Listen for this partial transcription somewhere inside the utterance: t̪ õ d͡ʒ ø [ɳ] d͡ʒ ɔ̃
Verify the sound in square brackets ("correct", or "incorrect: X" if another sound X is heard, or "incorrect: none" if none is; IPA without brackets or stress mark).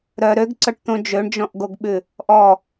correct